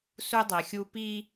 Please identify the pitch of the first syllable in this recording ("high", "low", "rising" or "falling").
high